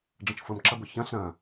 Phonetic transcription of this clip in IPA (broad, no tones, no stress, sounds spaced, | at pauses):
ɖ͡ʐ ə̃ t͡ʃ f ʊ m ǁ ɐ b ʊ ç ɐ̃ ɬ ɾ ɐ̃